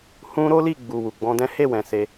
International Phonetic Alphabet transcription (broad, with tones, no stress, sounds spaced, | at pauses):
h ũ˦ ɾ o˦ l i˦˨ ɡ͡b u˨ w u˨ ɡ͡b ɔ̃˧ d ɛ̃˦ h e˦˨ w ɛ̃˨ s e˧